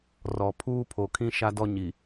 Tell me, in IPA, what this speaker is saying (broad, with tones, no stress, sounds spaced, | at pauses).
r ɔ˨ pʰ uː˦ pʰ o˨ kʰ ĩ˦ ʃ a˦ d ɔ˦ ɲ i˨